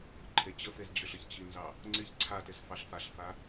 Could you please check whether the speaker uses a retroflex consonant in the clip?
no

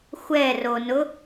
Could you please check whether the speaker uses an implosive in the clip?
no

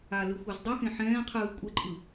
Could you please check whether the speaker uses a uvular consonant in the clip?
yes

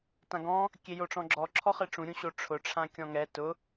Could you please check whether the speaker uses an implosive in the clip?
no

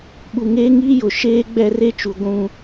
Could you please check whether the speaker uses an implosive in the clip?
yes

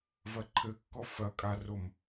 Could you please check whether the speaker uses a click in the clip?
yes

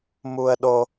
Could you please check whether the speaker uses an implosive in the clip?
yes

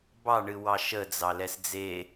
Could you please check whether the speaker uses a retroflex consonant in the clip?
yes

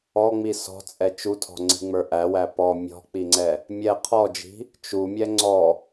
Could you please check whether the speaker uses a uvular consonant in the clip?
yes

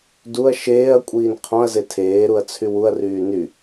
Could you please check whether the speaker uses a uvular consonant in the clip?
yes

